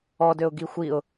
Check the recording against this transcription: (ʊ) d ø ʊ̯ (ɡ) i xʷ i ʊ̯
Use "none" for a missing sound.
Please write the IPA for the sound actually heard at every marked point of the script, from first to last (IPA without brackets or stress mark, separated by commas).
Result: ɔ, ɡ